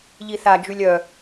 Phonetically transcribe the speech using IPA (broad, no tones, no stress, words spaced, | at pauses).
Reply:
ʎiθa d͡ʒylʲœ